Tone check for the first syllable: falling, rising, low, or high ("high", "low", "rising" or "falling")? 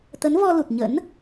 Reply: rising